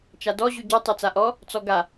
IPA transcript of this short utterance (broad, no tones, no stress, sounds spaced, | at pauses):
t͡ʃ a d ɔ ʑ ʉ ɟ ɔ tˤ e t͡s a ʔ ɔ | t͡s ɔ ɡ a